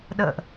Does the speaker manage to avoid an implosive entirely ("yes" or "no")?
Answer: no